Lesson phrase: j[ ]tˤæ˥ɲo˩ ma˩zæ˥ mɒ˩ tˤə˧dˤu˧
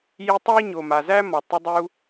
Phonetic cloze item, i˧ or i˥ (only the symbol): i˧